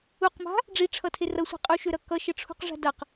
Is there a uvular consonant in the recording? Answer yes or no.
yes